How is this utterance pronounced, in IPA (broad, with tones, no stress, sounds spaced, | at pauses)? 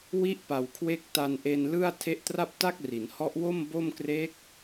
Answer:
w i˦˥ ʔ p a˨˩ w kʰ w e˦˥ k̚ t a˧ n ʔ e˧ n l ɯ˥˩ a̯ tʰ e˦˥ ʔ t r a˥˩ p̚ t a˥˩ k̚ r i˩˦ n h ɔ˦˥ ʔ w o˥˩ m b o˥˩ m k r e˦˥ k̚